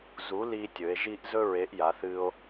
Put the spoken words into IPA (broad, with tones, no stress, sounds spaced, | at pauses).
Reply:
z u˨˥ l iː˥ tʲ ɵ˨˥ e̯ ʒ i˥ ʔ z ɵ˥ ɹ e˨˥ ʔ j a˨˥ θ ɨː˥ o̯